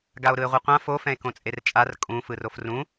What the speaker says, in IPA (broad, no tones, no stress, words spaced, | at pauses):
ɡao̯ɾɯe̯ʁʷɯqʷã fo fɛ̃e̯kõt͡sʼert͡ʃʼar kʼũ fɯrofrũ